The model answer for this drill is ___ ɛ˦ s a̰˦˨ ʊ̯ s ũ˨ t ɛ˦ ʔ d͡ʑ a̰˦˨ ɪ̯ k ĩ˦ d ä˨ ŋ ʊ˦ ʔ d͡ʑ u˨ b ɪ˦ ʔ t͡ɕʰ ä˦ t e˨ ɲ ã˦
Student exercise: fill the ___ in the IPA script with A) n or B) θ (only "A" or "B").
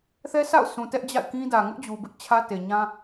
B